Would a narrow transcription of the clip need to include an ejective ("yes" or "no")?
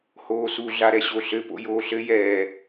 no